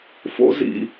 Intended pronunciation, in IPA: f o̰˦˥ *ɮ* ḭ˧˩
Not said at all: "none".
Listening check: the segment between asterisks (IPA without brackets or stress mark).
z